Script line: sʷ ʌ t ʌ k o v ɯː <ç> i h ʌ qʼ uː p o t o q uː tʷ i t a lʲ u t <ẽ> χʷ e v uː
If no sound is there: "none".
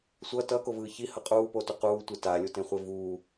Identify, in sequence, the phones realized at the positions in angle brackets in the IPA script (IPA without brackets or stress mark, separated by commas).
ç, ẽ